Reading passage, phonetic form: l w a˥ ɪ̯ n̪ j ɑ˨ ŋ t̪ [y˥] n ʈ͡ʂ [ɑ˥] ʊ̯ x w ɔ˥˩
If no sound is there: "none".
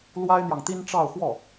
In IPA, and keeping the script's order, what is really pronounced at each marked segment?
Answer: i˥, ɑ˥˧

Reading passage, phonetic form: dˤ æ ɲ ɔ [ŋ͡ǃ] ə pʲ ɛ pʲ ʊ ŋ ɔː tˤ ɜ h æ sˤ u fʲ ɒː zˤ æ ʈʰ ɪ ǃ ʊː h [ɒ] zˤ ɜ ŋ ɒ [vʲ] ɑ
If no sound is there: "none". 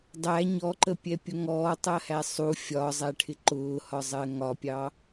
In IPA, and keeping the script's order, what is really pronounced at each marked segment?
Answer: ǃ, ɒ, pʲ

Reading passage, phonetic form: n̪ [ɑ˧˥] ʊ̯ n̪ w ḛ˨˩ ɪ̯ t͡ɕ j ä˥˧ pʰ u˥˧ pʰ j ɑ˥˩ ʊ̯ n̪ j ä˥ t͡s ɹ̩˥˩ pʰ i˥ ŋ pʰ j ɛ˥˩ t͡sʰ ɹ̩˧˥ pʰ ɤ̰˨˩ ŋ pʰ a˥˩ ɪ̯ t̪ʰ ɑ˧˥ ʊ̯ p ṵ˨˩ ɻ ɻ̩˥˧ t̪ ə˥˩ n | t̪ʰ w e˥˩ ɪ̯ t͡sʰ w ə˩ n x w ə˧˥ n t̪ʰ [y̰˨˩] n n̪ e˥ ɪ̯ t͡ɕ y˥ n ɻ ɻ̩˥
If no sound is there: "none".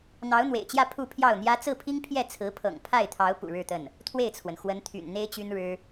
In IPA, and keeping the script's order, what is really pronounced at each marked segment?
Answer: ɑ˧˥, y̰˨˩

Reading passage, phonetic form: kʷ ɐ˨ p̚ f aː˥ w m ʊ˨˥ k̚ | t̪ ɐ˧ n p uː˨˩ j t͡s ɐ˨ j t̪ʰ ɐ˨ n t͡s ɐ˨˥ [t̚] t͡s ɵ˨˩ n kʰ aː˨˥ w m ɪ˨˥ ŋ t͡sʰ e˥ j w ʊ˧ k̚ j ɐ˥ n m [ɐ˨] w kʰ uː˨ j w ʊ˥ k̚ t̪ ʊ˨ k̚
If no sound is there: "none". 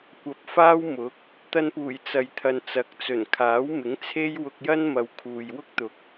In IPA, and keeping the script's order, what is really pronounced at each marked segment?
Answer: k̚, ɐ˨

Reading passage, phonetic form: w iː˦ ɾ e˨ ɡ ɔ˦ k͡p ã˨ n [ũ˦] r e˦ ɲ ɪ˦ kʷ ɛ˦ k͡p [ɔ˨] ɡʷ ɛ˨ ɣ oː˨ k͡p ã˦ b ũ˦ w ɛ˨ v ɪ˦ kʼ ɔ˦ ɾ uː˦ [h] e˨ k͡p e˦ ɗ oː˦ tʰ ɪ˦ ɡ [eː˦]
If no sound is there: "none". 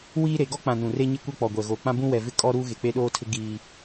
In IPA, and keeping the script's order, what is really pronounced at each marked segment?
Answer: ũ˨, ɔ˨, ɣ, iː˦

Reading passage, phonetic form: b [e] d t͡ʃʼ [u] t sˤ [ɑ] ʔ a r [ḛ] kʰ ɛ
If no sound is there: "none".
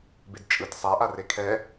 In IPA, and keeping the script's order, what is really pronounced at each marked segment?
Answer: e, ɯ, a, e

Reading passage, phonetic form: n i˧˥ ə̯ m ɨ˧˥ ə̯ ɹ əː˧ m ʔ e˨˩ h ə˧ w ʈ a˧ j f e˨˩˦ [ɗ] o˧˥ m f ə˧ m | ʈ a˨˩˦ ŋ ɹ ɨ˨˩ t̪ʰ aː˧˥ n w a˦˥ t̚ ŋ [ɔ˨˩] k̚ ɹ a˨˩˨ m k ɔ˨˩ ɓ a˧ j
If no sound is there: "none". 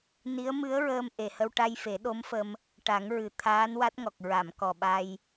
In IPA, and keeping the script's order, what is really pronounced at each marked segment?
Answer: ɗ, ɔ˨˩

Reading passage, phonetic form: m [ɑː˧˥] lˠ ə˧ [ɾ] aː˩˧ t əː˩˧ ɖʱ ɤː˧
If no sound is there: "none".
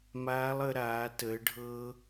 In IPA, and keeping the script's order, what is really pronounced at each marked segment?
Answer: aː˧˥, ɾ

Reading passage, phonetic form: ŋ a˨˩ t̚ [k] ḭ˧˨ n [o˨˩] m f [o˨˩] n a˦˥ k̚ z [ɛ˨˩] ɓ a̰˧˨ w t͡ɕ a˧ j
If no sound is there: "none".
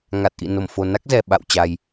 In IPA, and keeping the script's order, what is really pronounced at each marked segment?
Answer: ʔ, o˧˩, o˨˩, ɛ˨˩

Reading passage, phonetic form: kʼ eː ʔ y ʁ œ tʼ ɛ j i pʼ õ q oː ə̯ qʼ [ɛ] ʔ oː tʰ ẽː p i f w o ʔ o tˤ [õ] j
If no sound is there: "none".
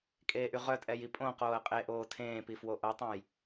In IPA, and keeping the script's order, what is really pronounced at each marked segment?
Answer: e, õ

